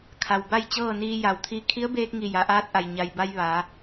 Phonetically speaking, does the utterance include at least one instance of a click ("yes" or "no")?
no